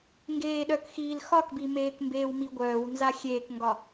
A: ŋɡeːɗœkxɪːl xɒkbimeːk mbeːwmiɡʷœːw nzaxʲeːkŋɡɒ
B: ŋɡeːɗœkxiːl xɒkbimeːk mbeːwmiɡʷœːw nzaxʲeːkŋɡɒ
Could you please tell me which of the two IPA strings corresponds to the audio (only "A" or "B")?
B